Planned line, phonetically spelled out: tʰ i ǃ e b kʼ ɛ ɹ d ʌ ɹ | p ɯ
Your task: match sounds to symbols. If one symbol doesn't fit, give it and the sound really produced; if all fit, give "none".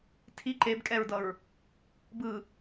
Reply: p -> b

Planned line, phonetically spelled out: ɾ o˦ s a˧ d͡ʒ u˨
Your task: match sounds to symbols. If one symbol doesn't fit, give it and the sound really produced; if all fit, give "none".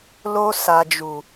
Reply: ɾ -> l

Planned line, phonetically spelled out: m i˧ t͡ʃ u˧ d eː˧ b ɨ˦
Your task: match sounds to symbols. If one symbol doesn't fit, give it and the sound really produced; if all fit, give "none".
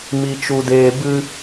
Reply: none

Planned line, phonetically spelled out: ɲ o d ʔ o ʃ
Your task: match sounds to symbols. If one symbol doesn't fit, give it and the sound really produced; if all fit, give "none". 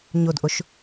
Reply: none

